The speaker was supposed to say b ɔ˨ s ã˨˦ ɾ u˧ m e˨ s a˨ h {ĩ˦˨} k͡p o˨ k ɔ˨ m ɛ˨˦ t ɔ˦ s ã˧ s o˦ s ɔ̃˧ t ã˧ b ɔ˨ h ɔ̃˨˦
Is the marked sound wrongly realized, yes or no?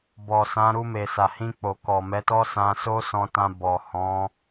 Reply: yes